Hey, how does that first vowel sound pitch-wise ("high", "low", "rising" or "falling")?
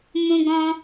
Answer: high